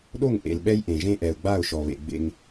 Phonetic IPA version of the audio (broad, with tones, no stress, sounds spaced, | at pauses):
ɗ o˦˨ ŋ ʔ ḛ˨ l ɓ ɛ˦ j ʔ ẽ˨ ʒ ẽ˦ ʔ ɛ˨ ʊ̯ ɡ͡b a˦˨ ʊ̯ ʃ ɔ˨ β ḛ˨ ɡ͡b ḛ˦ ŋ